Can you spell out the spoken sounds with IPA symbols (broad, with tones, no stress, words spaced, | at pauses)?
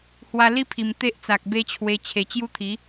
hwa˧li˦pʰi˨˩m t̪e˦ʔt͡sa˨k̚be˦t͡ɕʰwe˧ t͡ɕʰe˨˩t͡ɕju˦t̪ʰi˨˦